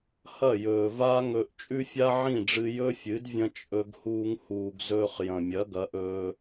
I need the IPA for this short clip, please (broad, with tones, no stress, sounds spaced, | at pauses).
h ɐ˦˨ j ɵː˨ v a˦ ŋ ɵ˧ ʔ t͡ʃʼ ʉ˦ fʲ a˦ ʕ ĩ˦˨ ɖ͡ʐ ɨ˧ j ɵ˦ fʲ ɨ˨˦ d vʲ ɐ̃˦ t͡ʃʼ ɵ˧ ɡ h uː˧ ŋ h uː˨ ɡ z ɵː˧ χ j ɐ̃˨ mʲ ɐ˨˦ ɡ ɐ˨˦ ʔ ɵː˧